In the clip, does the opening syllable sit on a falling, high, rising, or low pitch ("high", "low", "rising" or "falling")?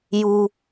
high